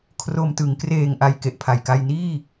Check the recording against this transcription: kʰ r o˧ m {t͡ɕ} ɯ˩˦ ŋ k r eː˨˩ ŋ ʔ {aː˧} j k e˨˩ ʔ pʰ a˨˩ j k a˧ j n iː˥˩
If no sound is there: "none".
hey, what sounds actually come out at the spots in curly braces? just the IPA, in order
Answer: t, a˧

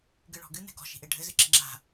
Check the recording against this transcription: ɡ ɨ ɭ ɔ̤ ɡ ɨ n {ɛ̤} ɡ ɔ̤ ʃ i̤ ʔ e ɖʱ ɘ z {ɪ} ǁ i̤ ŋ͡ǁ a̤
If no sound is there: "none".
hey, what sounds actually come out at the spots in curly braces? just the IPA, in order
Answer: ɛ̤, ɨ

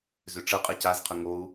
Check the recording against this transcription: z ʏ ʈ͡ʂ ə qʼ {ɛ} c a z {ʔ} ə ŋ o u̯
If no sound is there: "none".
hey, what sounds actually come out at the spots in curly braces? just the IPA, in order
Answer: ɛ, qʰ

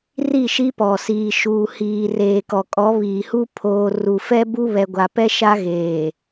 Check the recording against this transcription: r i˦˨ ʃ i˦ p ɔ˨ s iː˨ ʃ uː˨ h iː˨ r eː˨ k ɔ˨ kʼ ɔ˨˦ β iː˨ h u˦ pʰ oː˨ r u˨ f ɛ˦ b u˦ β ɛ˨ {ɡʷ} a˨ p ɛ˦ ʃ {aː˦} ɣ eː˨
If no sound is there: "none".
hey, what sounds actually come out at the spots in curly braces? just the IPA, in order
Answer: ɡʷ, a˦

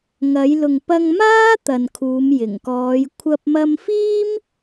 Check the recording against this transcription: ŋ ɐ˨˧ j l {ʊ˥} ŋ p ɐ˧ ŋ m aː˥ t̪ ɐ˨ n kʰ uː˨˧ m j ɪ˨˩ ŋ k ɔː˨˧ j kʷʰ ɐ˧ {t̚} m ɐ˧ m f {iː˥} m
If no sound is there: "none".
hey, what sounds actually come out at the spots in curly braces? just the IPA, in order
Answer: ʊ˨, p̚, iː˥

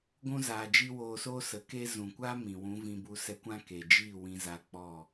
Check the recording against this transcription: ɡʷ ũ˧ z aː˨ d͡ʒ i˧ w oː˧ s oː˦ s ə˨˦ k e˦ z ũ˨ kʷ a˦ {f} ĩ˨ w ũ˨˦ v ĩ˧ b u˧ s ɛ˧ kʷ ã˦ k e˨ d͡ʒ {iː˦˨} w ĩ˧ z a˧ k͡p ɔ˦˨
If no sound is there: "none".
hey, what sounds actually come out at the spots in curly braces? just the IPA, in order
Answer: m, iː˦˨

